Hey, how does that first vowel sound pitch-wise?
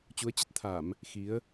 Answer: rising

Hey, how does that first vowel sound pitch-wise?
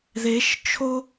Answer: rising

